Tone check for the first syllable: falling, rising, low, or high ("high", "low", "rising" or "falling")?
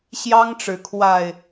high